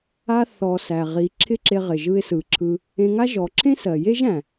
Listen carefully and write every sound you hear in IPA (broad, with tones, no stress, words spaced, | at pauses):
a˧θɔ˨ sæ˨ʁi˨˦ ǁʰɪ˦ǁe˧ʁɪ˨ ʒɯ˧ɪ̯sɯ˨ǁʰɯ˧ | ẽ˧ŋa˦ ʒɔ˨ǁʰẽ˦sɜ˨je˦ʒ æ̃˨